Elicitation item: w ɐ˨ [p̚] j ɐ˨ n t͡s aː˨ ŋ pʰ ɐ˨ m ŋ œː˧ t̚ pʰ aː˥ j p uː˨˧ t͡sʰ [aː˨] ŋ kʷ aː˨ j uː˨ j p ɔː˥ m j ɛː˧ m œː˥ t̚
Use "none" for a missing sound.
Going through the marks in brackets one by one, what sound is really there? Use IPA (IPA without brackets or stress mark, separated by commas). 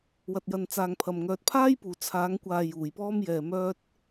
t̚, aː˨˧